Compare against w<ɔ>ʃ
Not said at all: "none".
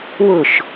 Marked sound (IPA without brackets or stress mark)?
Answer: ʊ